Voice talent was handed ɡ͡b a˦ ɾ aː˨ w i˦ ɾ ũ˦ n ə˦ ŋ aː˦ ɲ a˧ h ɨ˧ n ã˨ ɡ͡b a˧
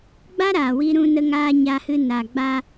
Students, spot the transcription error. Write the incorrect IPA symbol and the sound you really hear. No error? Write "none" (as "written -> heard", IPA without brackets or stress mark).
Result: ã˨ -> a˨